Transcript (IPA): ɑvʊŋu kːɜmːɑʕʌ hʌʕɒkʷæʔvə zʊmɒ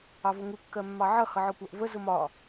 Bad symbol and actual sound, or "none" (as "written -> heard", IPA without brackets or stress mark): none